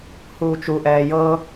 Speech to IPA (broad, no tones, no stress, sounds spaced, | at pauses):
h uː t͡ʃ u ʔ ɛː j ɤ